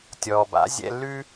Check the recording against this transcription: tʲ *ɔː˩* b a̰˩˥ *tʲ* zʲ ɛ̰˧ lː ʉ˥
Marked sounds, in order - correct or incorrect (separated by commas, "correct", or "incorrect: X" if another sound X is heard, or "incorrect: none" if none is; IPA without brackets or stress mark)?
correct, incorrect: none